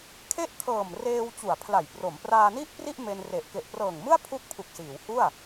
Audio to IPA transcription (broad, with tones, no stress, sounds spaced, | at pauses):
kʰ e˥˩ ʔ kʰ ɤː˨˩ m r eː˧ w t͡ɕ u˨˩ a̯ pʰ l a˨˩ j p r o˩˦ m p r aː˧ n i˥˩ ʔ p r i˥˩ ʔ m e˧ n r e˨˩ ʔ k e˨˩ ʔ p r ɤː˨˩ ŋ m ɯ˥˩ a̯ pʰ u˥˩ k̚ pʰ u˨˩ k̚ s iː˩˦ w h u˥˩ a̯